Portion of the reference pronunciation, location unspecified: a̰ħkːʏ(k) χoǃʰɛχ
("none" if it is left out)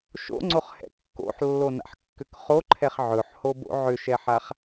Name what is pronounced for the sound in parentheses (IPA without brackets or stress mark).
k